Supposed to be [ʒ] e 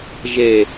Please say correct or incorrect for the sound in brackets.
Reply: correct